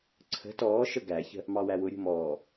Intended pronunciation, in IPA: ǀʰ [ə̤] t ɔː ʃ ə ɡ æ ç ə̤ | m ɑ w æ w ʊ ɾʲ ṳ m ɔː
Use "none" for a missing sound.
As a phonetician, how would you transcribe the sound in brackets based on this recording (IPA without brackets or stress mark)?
ə̤